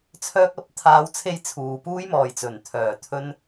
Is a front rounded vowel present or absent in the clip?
present